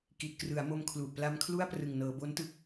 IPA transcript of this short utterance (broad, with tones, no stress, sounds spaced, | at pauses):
k i˨˩ t̚ k r ɯ˩˦ a̯ m o˧ m kʰ l u˨˩ ʔ p l a˧ m kʰ l u˥˩ a̯ p r ɯ˨˩ ŋ n ɤː˩˦ b o˦˥ n t ɯ˦˥ k̚